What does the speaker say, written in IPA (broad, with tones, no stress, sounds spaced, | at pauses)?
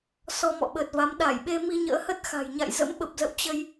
s ɔ˧ m ɔ̰˧˨ ɓ əː˨˩ t̚ v a˨˦ m ɗ a˧˩ j ɓ e˧ m i˧ ɲ ə̰ː˧˥ h ə˦˥ t̚ x a̤˨˩ j ɲ a̰˧˨ j z ə̰˧˥ m ɓ ə˨˩ p̚ z ə̰˧˨ w t͡ɕ ə˧ j